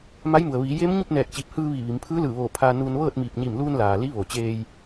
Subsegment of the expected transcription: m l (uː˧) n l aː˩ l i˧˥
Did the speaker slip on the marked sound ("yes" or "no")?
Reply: no